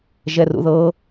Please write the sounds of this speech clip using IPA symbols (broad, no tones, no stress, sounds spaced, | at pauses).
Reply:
ʒ ɛ r ṵ ð ɤ